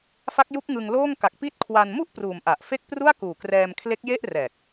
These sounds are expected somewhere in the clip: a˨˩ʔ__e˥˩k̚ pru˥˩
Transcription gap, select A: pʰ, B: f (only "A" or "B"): B